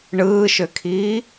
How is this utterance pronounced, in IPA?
ɳ ɯː ʃ ø kʰ iː

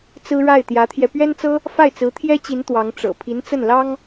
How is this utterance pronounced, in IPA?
t͡s ɹ̩˥ ɻ a˥˩ ɪ̯ t̪ j ä˧˥ t̪ʰ j ɛ˧ p ɥ ɛ˥ n t͡s ɤ˥ | f a˥˩ ɪ̯ t͡s ɹ̩˧˥ t̪ʰ j ɛ˥ t͡ɕ i˧˥ n t̪ w ɑ˧˥ ŋ ʈ͡ʂ ɤ̰˨˩ pʰ i˧˥ n t͡s ə˥˩ n l ɑ˥ ŋ

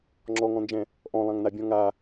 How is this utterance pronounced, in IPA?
ŋ͡ǁ ɔ ŋ ɔ̃ n d͡ʒ ɛ̃ | ʔ ɔ̃ lˠ ã ŋ n a bʲ ɔ̃ ŋ a

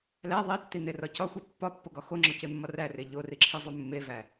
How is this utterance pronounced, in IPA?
l æ ðˤ i tː i n e r ɒ c ɒ xʷ i pː ɒ pː o ɡ ɒ x o ŋ͡ǁ ɒ c e mː ɒ r æ r e ʎ o r i ǁʰ i zˤ u mː e v æ

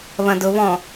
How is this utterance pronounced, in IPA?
β ɐ̃ d ʊ β ɔ̃

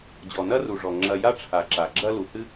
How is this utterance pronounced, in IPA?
d͡ʑ ɔ˩ n ɐ˦ r u˩ ʐ ɔ˩ ŋ͡ǁ ɐ˨ j a˦ ʈ͡ʂʰ a˩ ǁ a˩ ɡ͡ǁ ɐ˦ l u˩ h ɨ˦

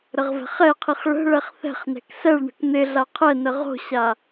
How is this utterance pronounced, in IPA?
ɾ ə ʁ v ɛ̤ χ ɛ qʰ i χ ɭ ə̤ ɭ ɛ χ θ ɛ̤ χ n ɛ̤ k s ɛ ɭ ɳ ə̤ k n̪ ɪ ɮ a qʰ ɛ n ə ʁ o̤ ɕ a

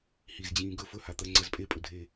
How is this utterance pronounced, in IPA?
h i z d͡ʑ ĩː ɡ ɵ f ɵ h a t̪ ɜ ŋ͡ǀ ɜ z pʼ e pʼ ɵ dʱ e

